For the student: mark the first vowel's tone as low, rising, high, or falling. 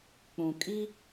low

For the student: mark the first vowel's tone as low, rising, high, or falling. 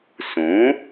rising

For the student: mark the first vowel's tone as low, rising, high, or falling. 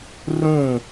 falling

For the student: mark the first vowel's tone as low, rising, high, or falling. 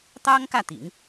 high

